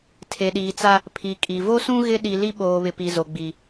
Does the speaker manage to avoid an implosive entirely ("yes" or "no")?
no